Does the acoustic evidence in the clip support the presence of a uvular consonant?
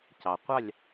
yes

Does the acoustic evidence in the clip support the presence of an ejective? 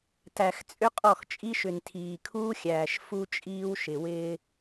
yes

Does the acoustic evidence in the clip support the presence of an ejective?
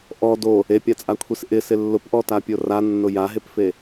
yes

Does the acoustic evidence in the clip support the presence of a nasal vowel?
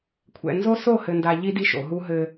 no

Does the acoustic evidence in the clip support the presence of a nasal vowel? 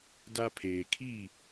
no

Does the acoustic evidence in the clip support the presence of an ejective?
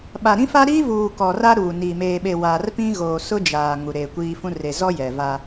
no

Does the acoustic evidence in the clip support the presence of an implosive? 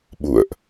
yes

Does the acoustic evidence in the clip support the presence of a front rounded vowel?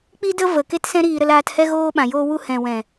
no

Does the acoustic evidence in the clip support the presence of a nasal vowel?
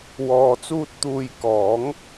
no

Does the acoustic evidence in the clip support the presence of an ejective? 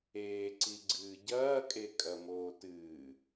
yes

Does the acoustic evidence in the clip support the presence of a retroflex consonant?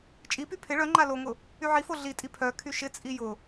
yes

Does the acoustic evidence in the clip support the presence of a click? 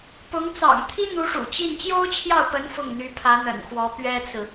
no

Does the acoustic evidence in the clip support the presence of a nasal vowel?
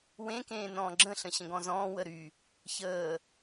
yes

